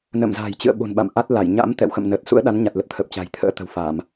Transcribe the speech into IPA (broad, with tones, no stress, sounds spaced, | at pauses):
n ə̰˧˨ m z a̤ː˨˩ j t͡ɕ ɨ̰˧˨ ə̯ ɓ o̤˨˩ n ɓ a̰˧˨ m ʔ a˦˥ t̚ l a˧˩ j ɲ a̰˧˥ m t̪ ɛ̰˧˨ w x ə̰˧˨ m n əː˨˩ t̚ s ṵ˧˥ ə̯ ɗ a˨˦ n ɲ a˨˩ t̚ l ə˨˩ p̚ t̪ʰ ə˨˩ p̚ t͡ɕ a̤˨˩ j t̪ʰ ə̰ː˧˥ t̪ ə̤˨˩ w f a˧˩˨ m